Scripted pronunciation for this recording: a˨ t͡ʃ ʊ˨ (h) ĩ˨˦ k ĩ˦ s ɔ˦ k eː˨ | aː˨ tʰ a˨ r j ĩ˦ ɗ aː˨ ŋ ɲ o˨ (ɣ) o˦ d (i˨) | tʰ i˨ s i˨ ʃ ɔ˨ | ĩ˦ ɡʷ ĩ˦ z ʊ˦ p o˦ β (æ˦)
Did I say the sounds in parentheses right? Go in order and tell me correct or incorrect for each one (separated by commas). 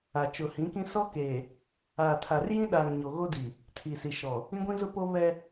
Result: correct, correct, correct, incorrect